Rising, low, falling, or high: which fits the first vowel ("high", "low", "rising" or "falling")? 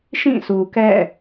falling